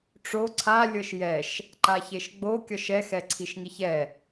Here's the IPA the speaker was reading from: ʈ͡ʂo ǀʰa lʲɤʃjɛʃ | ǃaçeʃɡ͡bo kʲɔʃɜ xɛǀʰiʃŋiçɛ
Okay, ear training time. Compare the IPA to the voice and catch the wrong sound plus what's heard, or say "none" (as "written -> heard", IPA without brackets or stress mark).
ɜ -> ɛ